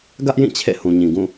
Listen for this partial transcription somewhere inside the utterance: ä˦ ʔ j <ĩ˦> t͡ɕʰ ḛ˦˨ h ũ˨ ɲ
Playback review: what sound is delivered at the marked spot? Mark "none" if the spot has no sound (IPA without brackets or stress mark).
ĩ˦˨